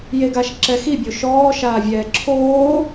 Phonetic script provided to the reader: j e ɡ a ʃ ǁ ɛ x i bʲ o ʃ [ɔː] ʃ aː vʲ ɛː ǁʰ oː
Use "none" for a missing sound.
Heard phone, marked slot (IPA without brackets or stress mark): ɔː